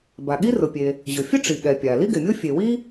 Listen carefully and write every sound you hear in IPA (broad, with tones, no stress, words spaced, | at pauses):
ba˩ɠi˥rʊ˩pʲe˩ | ʑʊ˩ fʲʊ˥ʈ͡ʂi˩ɠɛ˩ pʲa˩ li˥ɡɪ˩mʲo˥ fʲe˩wi˥